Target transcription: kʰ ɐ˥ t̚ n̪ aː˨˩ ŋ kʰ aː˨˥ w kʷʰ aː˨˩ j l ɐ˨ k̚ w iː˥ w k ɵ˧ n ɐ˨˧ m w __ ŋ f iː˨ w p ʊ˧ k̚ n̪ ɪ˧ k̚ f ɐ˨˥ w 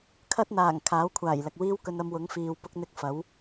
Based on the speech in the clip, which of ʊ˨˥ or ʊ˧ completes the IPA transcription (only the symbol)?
ʊ˨˥